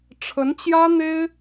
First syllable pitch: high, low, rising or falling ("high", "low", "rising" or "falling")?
rising